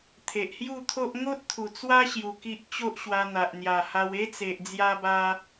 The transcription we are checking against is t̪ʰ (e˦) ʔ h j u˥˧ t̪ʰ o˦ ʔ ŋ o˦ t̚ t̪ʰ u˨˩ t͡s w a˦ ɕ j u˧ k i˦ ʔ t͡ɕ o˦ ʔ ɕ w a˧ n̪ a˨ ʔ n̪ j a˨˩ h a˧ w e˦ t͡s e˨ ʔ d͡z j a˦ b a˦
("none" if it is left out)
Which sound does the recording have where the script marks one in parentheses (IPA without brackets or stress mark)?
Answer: e˨